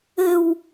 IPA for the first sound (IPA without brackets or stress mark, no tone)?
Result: ɘ